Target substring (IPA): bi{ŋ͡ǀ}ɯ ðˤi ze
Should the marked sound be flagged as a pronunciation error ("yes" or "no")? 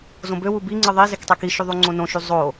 no